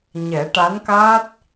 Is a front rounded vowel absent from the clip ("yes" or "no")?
yes